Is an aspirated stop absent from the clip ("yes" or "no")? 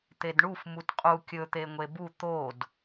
yes